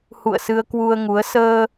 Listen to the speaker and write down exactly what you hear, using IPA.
h ṵ˧˨ ə̯ s ɨ˧ ə̯ k w u˧ ə̯ ŋ u˨˦ ə̯ s əː˧

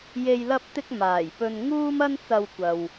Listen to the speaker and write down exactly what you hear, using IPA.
j e˨ j l ɐ˧ p̚ t̪ ɪ˧ k̚ m aː˨˩ j p ɵ˧ n ŋ uː˥ m ɐ˥ n t͡s ɐ˧ w kʷ ɐ˨ w

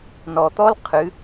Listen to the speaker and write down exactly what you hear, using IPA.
n ɔ˩ t̪ ɔ˥ l qʰ ɨ˩˧

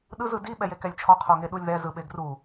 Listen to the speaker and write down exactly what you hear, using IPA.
ɗ ɯ z ɯ d i ɓ ɛ j e k ɛ lʲ t͡ʃʰ ɔ qʰ o ŋ e ɗ u lʲ ð ɛ z ɯ ɓ e ɡ r u

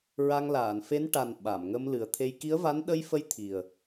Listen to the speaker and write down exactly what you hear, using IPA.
ɹ a˧ ŋ l aː˨˩˨ n f e˧˥ n ʈ a˨˩ n ɓ a˨˩˨ m ŋ ə˧ m l ɨ˨˩ ə̯ t̪ʰ e˧ j k i˧˥ ə̯ v a˧˥ n ɗ ə˧ j f ə˧˥ j t̪ʰ i˨˩ ə̯

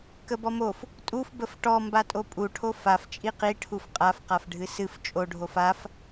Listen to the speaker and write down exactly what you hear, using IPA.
k ə b ɔ m o f | tʼ u f b ə f ʈ ɔ m b a tʼ o pʼ u ʈʰ o f a f t͡ʃʼ i q i ʈʰ u f qʼ a f q a f ɖʱ ɨ s ɨ f t͡ʃʼ o ɖʱ o f a f

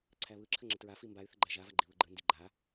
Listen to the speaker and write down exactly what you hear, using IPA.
ǀʰ æ β ɯ ǁʰ ə ŋ͡ǁ ə t ɹ a f i m b a y̯ θ ə ɡ͡ǃ æ ʒ a v a ɡ͡ǃ i β ɯ ɡ͡ǃ ɯ n d i ɡ͡ǃ a

